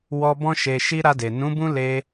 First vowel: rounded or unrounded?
rounded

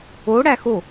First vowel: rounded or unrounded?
rounded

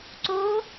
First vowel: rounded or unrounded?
rounded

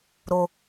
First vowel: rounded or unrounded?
rounded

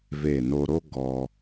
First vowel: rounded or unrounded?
unrounded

